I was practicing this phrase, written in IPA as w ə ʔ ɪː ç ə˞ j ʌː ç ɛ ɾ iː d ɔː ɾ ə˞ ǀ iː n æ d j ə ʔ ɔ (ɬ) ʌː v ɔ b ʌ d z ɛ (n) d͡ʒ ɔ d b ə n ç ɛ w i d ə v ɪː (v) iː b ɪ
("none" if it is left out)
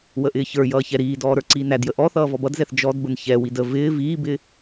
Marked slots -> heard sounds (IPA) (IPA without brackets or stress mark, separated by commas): θ, θ, v